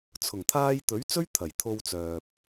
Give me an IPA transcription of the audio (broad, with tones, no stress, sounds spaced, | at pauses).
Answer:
t͡sʰ ʊ˨˩ ŋ t̪ʰ aː˧ j t̪ ɵ˨˥ ɥ t͡s ɵ˥ ɥ t̪ʰ ɐ˨˩ j t̪ʰ o˧ w t͡s œː˨ p̚